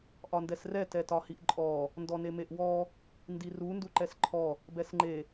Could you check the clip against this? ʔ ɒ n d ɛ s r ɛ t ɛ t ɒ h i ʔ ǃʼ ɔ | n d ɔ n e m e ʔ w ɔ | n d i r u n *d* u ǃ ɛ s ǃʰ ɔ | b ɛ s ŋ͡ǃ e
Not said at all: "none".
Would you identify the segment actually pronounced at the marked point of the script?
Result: d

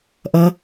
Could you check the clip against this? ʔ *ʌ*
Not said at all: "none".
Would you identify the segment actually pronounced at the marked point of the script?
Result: ʌ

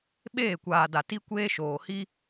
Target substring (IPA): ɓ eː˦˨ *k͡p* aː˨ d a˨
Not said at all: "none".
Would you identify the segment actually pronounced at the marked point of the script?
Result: kʷ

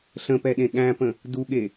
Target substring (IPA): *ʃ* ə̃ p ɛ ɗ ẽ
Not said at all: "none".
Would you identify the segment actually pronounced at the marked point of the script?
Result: ɬ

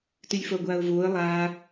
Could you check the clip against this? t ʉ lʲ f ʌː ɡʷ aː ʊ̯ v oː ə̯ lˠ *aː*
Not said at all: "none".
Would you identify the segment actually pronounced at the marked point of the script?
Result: aː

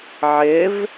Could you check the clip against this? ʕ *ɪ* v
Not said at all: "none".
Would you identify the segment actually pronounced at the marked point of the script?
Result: ɪ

